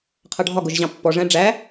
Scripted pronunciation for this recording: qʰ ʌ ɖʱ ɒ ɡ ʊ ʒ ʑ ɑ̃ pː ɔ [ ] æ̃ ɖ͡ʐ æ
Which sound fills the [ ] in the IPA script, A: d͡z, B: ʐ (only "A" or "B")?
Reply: B